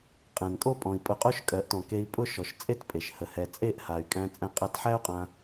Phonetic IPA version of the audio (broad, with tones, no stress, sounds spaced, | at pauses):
qʼ æ̃˨ n kʼ o˦ pʼ ɔ̃˨ i̯ pʼ ʊ˧ qʼ o˦ ʃ kʼ ɜ˨˦ ʔ t ɔ̃˨ k e˧ i̯ pʼ ʊ˦ ʃ ɔ˨ ʃ t͡sʼ e˦ t pʼ e˨ ʃ h ə˨ h ɛ˨ t͡sʼ e˦˨ ʔ h a˨ y̯ kʼ æ̃˧ t͡sʼ æ̃˧ qʼ a˧ t ħ æ˦ u̯ qʼ ã˧